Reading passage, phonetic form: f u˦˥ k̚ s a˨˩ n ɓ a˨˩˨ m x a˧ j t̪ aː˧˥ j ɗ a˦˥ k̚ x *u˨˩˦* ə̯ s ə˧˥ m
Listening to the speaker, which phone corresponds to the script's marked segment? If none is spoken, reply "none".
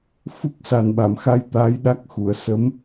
u˨˩˨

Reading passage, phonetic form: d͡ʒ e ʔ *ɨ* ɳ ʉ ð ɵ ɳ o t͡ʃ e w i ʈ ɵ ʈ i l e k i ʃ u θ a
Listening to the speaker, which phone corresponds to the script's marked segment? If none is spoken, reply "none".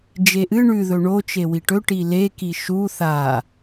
ɨ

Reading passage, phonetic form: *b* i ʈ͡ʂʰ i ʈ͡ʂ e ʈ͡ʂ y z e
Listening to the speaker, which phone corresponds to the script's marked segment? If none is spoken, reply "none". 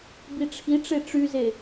b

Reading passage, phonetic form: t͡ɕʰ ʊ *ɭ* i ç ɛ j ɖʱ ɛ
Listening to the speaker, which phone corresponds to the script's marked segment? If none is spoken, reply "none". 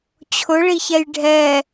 ɭ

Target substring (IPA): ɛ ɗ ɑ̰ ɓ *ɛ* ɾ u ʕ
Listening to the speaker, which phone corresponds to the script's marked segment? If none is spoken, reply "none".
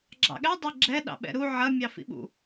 ɛ̰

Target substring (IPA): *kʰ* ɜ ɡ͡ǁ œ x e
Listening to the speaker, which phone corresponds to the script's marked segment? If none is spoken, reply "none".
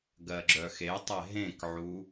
ɡ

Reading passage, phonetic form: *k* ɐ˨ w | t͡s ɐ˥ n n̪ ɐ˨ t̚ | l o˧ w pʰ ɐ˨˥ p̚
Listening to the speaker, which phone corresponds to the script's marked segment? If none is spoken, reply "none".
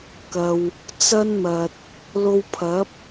k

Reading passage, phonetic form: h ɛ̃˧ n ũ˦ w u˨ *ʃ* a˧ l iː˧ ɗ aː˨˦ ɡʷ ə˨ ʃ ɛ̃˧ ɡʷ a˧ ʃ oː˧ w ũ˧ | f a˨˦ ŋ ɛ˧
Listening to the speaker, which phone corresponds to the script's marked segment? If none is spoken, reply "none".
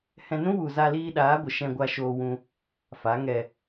z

